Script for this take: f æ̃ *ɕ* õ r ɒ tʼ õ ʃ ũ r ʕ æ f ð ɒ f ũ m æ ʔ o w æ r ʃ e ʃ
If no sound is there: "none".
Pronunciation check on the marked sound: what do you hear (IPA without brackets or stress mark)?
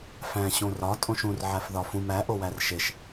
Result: ɕ